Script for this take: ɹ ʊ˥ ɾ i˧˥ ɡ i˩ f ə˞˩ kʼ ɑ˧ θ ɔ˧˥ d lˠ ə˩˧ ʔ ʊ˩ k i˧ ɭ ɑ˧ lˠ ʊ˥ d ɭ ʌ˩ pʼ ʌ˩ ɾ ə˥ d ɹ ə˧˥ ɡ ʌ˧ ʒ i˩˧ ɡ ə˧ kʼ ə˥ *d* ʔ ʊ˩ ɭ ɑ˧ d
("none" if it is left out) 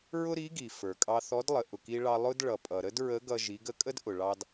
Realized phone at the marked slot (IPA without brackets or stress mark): d